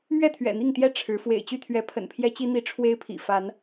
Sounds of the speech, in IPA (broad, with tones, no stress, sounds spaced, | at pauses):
m ɥ ɛ˥˨ t̪ʰ ɥ ɛ̰˨˩ n̪ i˥˨ ŋ t̪ j ɛ˥˨ ʈ͡ʂʰ ɻ̩˨˦ f w ḛ˨˩ ɪ̯ t͡ɕ y˥˨ t̪ʰ ɥ ɛ˨˦ pʰ ə̰˨˩ n pʰ j ɛ˦ t͡ɕ i˦ n̪ i˨˦ ʈ͡ʂʰ w e˦ ɪ̯ pʰ ḭ˨˩ f a˨˦ n